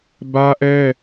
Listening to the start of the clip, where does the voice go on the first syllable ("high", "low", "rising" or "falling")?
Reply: high